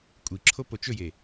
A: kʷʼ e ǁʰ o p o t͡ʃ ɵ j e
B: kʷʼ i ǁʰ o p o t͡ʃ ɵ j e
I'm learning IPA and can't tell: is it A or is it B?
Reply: B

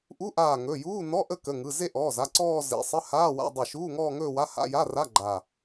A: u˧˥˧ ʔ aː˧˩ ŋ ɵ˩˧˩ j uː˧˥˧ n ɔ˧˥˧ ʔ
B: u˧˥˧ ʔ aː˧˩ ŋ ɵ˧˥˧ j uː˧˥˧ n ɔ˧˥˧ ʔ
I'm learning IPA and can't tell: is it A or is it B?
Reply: A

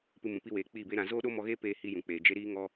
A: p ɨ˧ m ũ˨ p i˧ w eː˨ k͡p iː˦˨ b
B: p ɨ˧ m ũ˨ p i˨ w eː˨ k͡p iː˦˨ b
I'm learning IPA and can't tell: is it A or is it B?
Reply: A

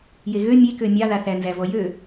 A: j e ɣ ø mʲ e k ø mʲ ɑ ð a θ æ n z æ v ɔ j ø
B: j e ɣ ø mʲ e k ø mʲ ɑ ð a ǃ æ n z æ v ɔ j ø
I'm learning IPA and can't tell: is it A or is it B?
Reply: A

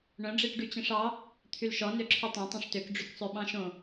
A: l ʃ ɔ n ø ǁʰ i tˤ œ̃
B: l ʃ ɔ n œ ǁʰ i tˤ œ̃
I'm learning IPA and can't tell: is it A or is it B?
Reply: A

